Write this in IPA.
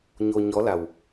ɲ o˧ ɲ ɔ˧˥ l a˨˩ w

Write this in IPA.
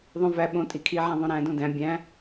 ðˤ õ v æ ɓ õ tʼ i kʰ i ʕ æ̃ ðˤ õ ɾ æ̃ d õ d æ̃ bʲ æ̃

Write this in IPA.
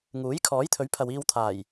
ŋ uː˨˥ j kʰ ɔː˨˥ j t̪ʰ ɵ˨˥ ɥ pʰ ɐ˨ w iː˧ w t̪ʰ aː˨˩ j

